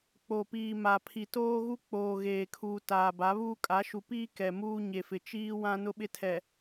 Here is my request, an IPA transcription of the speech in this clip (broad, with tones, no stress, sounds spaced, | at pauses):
k͡p o˨ p iː˨ m a˨ pʰ i˨ t oː˦ ɣ u˦ k͡p oː˨ ɣ eː˨ kʰ uː˨ t aː˨ b a˨˦ β uː˦ kʼ a˨˦ ʃ u˨ p iː˦ k ɛ˨ m uː˦ ɲ e˨ f ɪ˨ t͡ʃ iː˦ w ã˦ n ʊ˦ ɓ ɪ˦ tʰ ɛ˨